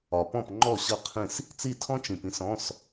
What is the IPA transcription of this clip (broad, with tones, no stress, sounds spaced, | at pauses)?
ɒ˨ p ɔ̃˥˩ p ŋ͡ǃ ɔ˥˩ ɕ ʌ˥˩ qʰ ĩ˥˩ s | t͡s i˥˩ tʰ ɔ̃˥ t͡ʃ ĩ˨ p ĩ˥ s ɔ̃˧˥˧ s